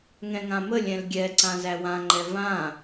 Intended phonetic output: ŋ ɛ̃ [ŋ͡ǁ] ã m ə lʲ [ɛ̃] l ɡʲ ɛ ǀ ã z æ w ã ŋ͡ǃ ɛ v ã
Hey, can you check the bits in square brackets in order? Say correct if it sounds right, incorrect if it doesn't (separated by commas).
incorrect, correct